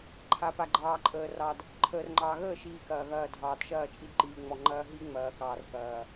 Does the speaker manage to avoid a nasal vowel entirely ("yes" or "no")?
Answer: yes